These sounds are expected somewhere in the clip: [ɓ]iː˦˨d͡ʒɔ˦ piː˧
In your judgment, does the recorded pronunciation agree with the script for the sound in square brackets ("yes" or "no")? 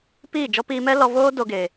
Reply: no